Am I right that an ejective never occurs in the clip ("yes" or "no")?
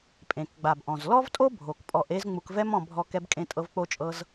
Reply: no